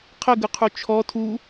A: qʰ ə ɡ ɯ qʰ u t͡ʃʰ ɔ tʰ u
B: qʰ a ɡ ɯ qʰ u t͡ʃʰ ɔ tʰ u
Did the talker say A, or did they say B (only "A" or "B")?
A